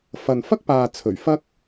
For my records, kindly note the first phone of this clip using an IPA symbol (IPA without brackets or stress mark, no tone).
f